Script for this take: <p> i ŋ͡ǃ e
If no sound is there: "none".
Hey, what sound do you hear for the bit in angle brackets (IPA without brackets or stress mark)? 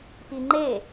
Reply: p